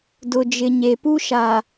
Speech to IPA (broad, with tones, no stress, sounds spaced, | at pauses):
d ʊ˨ d͡ʒ ɪ˨ ɲ e˨ p u˦ ʃ a˨